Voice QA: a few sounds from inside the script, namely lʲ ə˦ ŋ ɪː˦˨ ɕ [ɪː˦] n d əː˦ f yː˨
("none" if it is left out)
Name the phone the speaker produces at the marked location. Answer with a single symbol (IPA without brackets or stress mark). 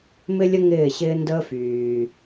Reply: ɪː˦